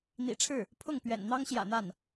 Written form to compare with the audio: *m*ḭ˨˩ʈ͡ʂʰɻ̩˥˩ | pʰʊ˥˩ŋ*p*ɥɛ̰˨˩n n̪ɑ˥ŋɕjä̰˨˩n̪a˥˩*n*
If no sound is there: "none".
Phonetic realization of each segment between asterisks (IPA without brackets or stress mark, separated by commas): n̪, p, n